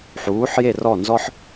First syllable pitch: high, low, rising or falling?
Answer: rising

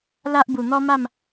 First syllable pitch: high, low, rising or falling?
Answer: high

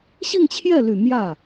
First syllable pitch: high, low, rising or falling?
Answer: falling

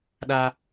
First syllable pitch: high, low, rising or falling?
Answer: high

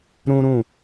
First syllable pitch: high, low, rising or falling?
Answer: high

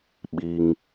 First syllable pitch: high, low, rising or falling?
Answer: low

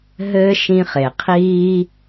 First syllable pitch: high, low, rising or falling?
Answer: high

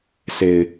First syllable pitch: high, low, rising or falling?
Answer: low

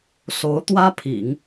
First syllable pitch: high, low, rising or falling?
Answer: rising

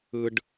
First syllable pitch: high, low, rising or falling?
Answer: high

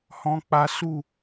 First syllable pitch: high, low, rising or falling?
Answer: high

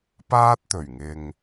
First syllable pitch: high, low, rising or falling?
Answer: high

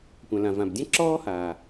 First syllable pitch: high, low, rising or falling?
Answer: low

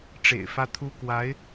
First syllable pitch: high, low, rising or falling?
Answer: low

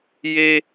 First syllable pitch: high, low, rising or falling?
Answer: high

